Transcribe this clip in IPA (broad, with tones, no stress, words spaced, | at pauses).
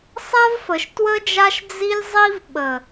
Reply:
sˤa˦vfə˨ʃtwə˦d͡ʒa˦ʃ d͡zi˦lʲzˤi˦v ɓə˨